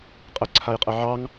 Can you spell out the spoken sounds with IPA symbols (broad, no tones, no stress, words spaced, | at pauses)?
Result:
qʼə ǀʰajqʼəʕɑŋ